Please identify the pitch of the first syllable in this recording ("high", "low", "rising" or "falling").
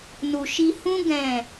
low